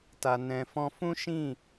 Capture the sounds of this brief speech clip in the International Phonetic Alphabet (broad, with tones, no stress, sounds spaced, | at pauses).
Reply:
t a˨ n ɛ̃˨ f ɔ̃˧ f ũ˦ ʃ ĩ˦˨